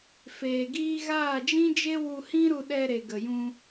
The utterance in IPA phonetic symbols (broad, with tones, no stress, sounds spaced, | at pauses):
f eː˨ ɡ iː˧ ɣ aː˦˨ d͡ʒ ĩ˦ d͡ʒ e˦ w u˧ h ĩ˦ ɾ u˧ ɗ ɛ˧ ɾ e˨ ɡ ə˨ j ũ˧